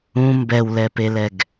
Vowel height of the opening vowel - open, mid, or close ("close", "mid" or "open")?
close